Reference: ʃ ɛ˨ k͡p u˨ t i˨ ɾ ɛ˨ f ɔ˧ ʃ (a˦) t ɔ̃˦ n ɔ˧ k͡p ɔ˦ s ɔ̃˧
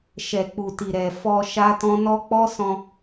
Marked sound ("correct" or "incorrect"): correct